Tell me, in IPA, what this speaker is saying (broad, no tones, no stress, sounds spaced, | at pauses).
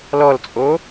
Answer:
l ɔ l t͡sʼ o